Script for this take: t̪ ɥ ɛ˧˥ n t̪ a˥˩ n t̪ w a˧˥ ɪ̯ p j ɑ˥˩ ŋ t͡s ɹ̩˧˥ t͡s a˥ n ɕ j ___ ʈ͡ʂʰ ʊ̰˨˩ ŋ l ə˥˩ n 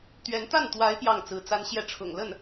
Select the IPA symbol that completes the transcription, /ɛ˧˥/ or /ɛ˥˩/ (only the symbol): ɛ˥˩